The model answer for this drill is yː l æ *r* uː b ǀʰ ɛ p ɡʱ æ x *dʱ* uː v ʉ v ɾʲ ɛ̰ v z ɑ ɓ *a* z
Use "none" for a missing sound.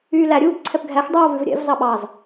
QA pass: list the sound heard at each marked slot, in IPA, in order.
ɾʲ, dˤ, ɑ

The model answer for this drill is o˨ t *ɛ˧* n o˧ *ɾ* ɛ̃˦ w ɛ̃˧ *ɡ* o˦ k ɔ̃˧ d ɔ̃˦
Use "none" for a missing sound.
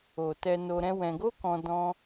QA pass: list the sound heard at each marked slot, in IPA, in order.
ɛ˧, ɾ, ɡ

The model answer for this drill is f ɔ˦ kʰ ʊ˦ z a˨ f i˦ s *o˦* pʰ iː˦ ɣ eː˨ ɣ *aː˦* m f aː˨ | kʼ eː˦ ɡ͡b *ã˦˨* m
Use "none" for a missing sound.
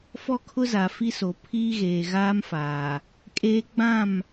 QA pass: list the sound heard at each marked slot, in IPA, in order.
o˨, aː˦, ã˦˨

